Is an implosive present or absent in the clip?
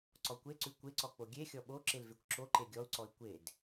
present